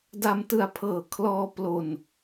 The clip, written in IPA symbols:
da˧mtɯ˧a̯ pʰɤː˨˩kʰlɔː˧ plo˧n

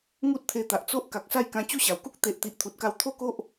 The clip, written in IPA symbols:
ŋu˦t̚t̪ʰe˧t̪a˨ʔt͡so˦ʔ ka˨k̚sa˥˧jkã˧ t͡ɕu˥˧ɕa˨˩wku˦k̚ t̪e˨ʔ t̪i˨ʔt̪ʰu˨t̚ka˧w t̪ʰo˥˧ko˦ʔ

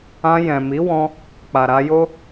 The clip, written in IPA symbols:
ã˧jɛ̃˨mi˨˦ wɔ̃˦ | k͡pa˨ ɾa˧jo˦

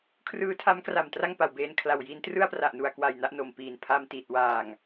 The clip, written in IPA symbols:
kʰrɯː˦˥tʰa˦˥mkra˨˩m tra˥˩ŋpa˨˩w beː˧nkʰla˨˩wji˦˥n trɯ˥˩a̯pra˨˩ʔnu˨˩a̯kwa˨˩j na˥˩ʔno˨˩mpiː˨˩n pʰa˧mti˨˩t̚ waː˨˩ŋ

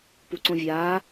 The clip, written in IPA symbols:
puǀõvʲaː

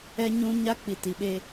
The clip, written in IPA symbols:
ɛ˦ɲũ˦ ɲa˦k͡pi˨ti˨ɓe˦

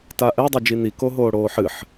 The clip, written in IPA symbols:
taʔɛ dˤed͡ʒin̪i koɦoːɽoːħɨħ

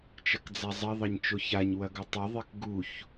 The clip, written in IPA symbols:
t͡ʃɐkd͡zazˤɐ ðˤɐɲt͡ʃoçaɲ wɐɡotˤɐ ðˤekɡuç

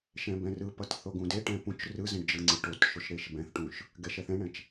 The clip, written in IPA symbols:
ʃɛ̃bɛ̃rɯpʌt θoɡũdeʈɛ̃ pũt͡ʃ rɯzɛ̃ɖ d͡ʒɯŋ͡ǀɯʈotʃoʃ ɾeʃbɛ̃θʈũʃ | ɡɛʃɛθɛ̃ɳɛ̃t͡ʃ

